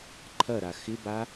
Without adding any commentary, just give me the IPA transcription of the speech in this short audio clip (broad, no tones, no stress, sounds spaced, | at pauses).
ǃʰ ɐ ɾ a x ɪ b a